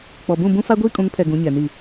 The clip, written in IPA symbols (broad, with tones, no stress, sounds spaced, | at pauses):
k͡p ɔ˨ b ũ˦˨ b ũ˦ f a˦ ɡʷ iː˦ kʼ ũ˨˦ ŋ pʰ ɛ˨ ɡ ũ˨˦ ɲ ɛ˨ n i˦˨